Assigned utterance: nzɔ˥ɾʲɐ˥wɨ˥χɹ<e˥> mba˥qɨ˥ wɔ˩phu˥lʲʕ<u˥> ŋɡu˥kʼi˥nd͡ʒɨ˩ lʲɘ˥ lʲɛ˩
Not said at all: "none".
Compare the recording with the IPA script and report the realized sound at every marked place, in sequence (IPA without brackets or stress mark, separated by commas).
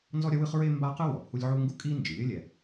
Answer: e˥, u˥